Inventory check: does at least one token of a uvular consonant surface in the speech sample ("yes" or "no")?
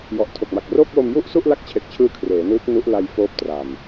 no